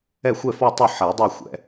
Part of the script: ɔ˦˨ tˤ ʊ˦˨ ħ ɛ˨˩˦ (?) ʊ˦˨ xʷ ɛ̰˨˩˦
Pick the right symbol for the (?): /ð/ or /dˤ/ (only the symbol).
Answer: dˤ